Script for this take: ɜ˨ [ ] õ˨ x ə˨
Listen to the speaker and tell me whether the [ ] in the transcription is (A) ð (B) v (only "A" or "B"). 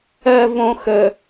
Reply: B